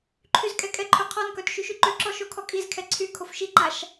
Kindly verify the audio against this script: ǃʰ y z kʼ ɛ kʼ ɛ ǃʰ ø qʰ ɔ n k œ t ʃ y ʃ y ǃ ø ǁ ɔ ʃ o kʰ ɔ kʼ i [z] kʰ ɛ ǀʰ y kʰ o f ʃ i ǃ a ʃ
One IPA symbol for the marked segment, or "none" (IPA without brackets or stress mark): z